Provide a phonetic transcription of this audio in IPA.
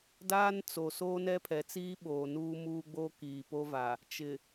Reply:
d aː˦ n t͡s o˨ s oː˦ n ɛ˦ pʰ ɛ˨ t͡s iː˦ ɓ oː˨ n uː˦ m uː˦ ɡ͡b o˦ k iː˨ p o˦ v a˨ | t͡ʃ ɪ˨

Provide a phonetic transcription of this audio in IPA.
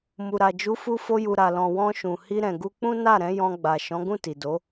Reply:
m u˨ ɾ a˨ d͡ʒ u˨˦ f u˧ f o˧ j u˨ ɾ a˨ l ɔ̃˨ w ɔ̃˧ ʃ ũ˨ h i˧ ɾ ɛ̃˨ ɡ u˧ k͡p ũ˦ n a˦˨ ɾ ɛ̃˨˦ j ɔ̃˧ ɡ͡b a˨ ʃ ɔ̃˨˦ ɡ ũ˦˨ t i˨ d o˨˦

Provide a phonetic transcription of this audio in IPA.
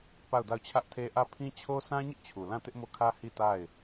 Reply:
p a˦˨ ʊ̯ d a˦˨ ʊ̯ t͡ɕʰ ä˦ ʔ tʰ e˦ ʔ ä˦˨ pʰ ĩ˦ t͡ɕʰ o˦ sʰ ã˦ ɲ ɪ˦ ʔ t͡ɕʰ u˨ l ã˦˨ t ɪ˦ ʔ m o˦˨ kʰ ä˦ h i˦˨ t a˦˨ ɪ̯

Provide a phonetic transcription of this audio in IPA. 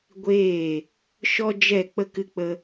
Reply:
ɡʷ eː˦˨ | ʃ ɔ˦ d͡ʒ ɛ˦˨ k͡p ə˦ k ɨ˦ k͡p ə˦

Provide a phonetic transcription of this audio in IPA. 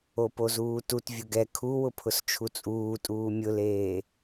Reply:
o p o z uː t u t vʲ ʊ ɡ ɛ kʰ u w ʊ pʰ ʊ s t͡ʃʰ u t͡sʼ uː tʼ uː mʲ ʊ l eː

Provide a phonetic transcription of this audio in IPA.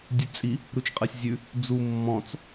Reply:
dʲ ʉ t͡sʼ i | ɾ u t͡ʃ qʼ ɛ sʲ zʲ ʉ | d͡z u mː ɔ̃ t͡s

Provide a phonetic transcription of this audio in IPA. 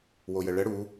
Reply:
w o j ə ɭ ə ɽ u

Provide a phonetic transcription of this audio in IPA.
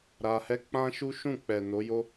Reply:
ɾ a˧ h ɛ˦ k͡p ã˦ ʃ u˦ ʃ ũ˦˨ k͡p ɛ˨ n o˨˦ j o˦

